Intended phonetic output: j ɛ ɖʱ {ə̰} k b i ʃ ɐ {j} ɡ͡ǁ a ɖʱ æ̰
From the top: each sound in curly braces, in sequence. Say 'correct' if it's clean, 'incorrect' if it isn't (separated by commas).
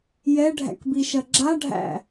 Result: incorrect, incorrect